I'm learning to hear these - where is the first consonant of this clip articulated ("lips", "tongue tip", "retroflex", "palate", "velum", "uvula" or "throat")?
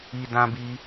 tongue tip